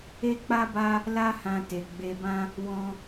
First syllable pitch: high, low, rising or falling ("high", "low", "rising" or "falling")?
high